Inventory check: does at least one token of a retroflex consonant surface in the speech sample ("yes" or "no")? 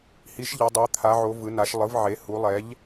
no